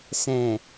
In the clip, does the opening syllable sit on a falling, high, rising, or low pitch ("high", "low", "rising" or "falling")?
low